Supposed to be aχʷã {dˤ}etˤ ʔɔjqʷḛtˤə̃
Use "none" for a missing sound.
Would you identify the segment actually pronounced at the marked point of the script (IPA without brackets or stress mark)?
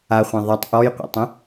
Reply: ðˤ